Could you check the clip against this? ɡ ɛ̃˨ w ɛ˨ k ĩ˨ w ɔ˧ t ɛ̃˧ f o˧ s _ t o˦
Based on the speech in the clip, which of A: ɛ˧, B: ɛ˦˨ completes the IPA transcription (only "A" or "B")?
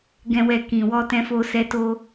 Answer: A